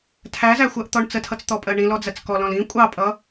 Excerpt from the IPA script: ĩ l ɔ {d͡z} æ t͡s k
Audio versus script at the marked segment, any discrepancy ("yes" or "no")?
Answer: no